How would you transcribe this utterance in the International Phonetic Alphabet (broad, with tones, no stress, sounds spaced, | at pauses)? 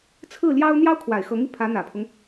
t͡sʰ ɹ̩˥˩ l j ɑ˥ ʊ̯ n̪ j ɑ˥ ʊ̯ kʰ w a˨˩ ɪ̯ x ɤ˧˥ ŋ i˧ pʰ ä˧˥ n̪ ä˨˩ pʰ ʊ˦ ŋ